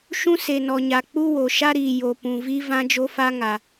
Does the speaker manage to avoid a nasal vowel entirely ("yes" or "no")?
no